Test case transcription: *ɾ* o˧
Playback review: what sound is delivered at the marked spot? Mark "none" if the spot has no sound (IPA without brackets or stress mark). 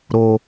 ɾ